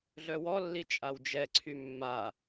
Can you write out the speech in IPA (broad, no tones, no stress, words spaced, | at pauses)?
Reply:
ɮœwɔlːi t͡ʃʼawd͡ʒɛǀʰy mːa